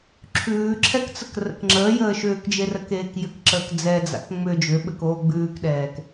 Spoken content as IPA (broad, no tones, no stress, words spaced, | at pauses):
ǁʰʉːǁʰɛkt͡sək rə̰kŋ͡ǁəːjəː ʃʏːkd͡ʒerəkeːk jʏkǁəːk d͡zɛd͡za̰k ŋ͡mʏ d͡ʒʏɓɘk oːɡ͡bʉːkɗɛːk